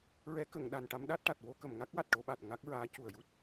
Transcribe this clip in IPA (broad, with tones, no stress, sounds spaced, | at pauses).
ɹ ɛ˧˥ k ə˨˩˨ ŋ ɗ a˨˩ n ʈ a˧˥ m ɗ a˦˥ t̚ ʈ a˨˩ t̚ w o˧ k ə˨˩˨ m ŋ a˦˥ k̚ w a˨˩ t̚ ʈ o˧ ɓ a˨˩ t̚ ŋ a˦˥ k̚ ɹ aː˧˥ c u˨˩ ə̯ j u˦˥ t̚